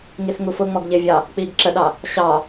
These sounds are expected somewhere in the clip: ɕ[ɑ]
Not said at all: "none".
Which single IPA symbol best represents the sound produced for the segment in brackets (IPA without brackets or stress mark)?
ɑ